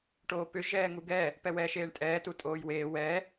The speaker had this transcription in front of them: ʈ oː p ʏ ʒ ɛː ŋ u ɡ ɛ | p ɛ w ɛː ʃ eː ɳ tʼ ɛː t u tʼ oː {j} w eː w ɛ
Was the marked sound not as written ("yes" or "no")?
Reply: no